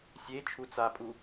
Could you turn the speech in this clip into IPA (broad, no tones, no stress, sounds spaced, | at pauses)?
sʲ e t͡ʃʰ u t͡s a pʼ u